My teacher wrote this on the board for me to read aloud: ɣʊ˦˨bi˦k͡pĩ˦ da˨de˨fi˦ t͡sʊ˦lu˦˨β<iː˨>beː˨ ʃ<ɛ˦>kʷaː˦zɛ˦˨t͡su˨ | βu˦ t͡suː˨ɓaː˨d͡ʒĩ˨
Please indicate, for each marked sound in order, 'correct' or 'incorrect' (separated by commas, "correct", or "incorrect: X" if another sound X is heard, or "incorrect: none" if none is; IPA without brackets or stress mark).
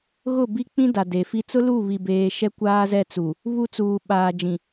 incorrect: i˨, correct